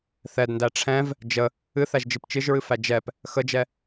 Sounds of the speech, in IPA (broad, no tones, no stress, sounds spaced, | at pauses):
θ ɛ d n d æ ʈ͡ʂʰ ɛ̃ v | d͡ʒ ə | ɨ θ æ ʒ d͡ʒ ɨ p t͡ʃ ɨ ʒ ɹ ɨ f æ d͡ʒ ɛ p | x ə d͡ʒ ɛ